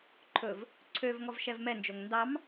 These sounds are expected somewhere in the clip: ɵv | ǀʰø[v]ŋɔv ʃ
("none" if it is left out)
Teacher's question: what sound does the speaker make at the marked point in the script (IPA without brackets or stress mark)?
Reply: v